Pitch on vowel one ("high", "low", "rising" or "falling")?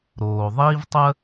low